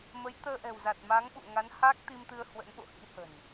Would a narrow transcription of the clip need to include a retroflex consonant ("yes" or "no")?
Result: no